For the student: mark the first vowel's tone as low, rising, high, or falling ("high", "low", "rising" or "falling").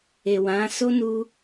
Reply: low